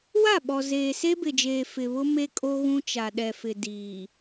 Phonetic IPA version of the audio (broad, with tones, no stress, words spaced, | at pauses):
wa˦˨ɓɔ˨zeː˨ se˦bɪ˨d͡ʒeː˨ fɪ˨βʊ˦ me˦ kʼo˦ɣũ˦t͡ʃa˨ ɗɛ˨fɪ˨ diː˨